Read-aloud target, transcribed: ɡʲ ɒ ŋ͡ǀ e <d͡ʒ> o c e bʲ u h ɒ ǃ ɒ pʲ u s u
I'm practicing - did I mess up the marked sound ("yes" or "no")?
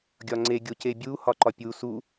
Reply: yes